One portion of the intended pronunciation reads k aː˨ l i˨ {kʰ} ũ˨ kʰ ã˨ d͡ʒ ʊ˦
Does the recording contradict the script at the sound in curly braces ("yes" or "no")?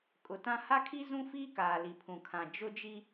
yes